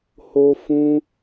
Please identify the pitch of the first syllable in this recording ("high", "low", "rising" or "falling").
high